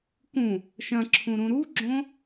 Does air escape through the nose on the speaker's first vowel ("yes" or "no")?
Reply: yes